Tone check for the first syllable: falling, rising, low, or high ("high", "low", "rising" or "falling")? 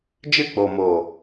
falling